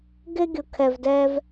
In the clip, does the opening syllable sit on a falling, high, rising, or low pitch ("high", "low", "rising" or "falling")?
high